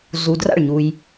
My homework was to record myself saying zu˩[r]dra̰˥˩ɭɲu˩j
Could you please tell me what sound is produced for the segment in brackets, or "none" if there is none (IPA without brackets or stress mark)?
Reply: none